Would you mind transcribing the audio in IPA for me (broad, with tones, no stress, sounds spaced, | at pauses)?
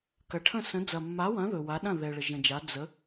k ɐ˨ ʈʰ ə̃˥˩ s ə̃˨˥ d͡z ɐ˨ mː a˨˥ w ɐ̃˨˥ ð ɵ˨ w a˨˥ ɗ ɐ̃˥˩ ð ɛ˨ ɭ ə˨ ʒ ə̃˨ d͡ʒ a˨˥ d͡z ə˨˥